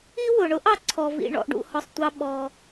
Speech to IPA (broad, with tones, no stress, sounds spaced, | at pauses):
i˥ w ʊ˩ ɳ ʊ˥ ʔ ɑ˨ ǀʰ ɔ˩ v ḭ˩ ɳ ɔ̰˩ ʔ ɖ ṵ˩ h ɔ˩ sˤ tʷ ɑ˨ ɓ ɔ˩